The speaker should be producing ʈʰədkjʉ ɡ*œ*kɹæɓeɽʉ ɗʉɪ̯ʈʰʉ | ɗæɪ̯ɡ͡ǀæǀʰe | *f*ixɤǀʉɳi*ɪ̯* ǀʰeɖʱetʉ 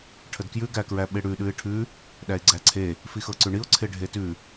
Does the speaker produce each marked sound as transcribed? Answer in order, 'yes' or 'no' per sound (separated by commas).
no, yes, no